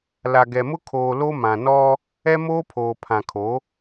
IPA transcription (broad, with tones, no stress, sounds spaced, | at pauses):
l a˨ ɡ ɛ˨ m ʊ˦ kʰ oː˨ l o˦ m ã˨ n ɔ˦ | ɛ˦ m oː˦ pʰ oː˨ pʰ ã˨ kʰ o˨˦